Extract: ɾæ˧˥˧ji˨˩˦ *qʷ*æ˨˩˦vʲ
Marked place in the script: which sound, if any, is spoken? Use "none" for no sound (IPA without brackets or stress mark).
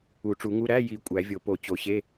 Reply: kʷʼ